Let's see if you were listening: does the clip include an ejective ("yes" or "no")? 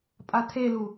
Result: yes